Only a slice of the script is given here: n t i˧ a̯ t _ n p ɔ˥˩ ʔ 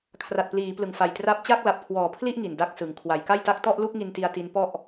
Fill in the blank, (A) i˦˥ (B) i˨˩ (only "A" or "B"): A